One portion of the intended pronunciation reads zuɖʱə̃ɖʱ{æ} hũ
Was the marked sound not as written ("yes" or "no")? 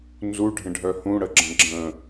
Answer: yes